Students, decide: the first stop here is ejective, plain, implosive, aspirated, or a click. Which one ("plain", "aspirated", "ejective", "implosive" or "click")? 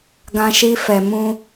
plain